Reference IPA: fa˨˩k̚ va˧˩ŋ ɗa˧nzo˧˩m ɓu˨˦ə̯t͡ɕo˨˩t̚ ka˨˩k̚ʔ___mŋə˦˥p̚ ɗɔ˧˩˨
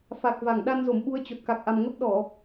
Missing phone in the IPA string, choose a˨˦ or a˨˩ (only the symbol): a˨˩